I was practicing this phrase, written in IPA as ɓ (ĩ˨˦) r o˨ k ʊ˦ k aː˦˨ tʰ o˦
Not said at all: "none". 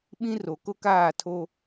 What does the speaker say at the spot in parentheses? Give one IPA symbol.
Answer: ĩ˦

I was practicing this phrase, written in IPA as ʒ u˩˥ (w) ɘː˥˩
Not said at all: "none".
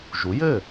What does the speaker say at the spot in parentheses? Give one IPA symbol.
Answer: j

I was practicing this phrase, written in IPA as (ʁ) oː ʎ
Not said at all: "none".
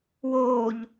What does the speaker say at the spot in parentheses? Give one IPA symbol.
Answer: w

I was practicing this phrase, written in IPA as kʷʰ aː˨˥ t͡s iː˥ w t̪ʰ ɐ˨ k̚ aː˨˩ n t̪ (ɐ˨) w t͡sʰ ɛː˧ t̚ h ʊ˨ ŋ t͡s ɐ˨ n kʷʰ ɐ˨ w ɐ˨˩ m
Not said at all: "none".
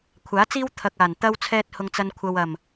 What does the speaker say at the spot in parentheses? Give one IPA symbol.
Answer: ɐ˧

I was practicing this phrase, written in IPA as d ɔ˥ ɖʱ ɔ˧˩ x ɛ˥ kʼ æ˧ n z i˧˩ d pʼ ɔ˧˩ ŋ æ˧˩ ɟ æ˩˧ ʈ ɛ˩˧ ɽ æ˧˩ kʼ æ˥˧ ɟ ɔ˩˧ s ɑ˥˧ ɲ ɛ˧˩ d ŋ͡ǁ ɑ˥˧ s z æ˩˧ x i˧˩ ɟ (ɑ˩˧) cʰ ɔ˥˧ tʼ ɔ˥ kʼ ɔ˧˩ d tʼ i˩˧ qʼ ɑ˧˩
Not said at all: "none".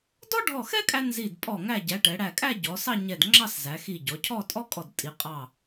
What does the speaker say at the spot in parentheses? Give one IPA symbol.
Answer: ɔ˩˧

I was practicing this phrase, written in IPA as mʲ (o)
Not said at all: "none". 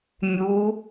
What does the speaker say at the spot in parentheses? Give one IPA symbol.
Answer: u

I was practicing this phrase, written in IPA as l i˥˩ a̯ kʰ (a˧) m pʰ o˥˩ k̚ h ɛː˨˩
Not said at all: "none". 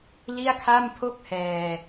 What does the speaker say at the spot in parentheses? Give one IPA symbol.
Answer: a˥˩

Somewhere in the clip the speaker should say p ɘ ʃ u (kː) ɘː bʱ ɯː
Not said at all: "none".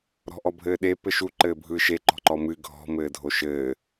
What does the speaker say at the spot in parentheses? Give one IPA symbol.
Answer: ǃ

